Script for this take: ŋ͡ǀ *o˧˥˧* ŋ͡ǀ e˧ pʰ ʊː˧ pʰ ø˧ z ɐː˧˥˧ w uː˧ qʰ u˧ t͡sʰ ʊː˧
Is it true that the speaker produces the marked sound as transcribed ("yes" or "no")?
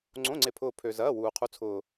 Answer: no